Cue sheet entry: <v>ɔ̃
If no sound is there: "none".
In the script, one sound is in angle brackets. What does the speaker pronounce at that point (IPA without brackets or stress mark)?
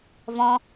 v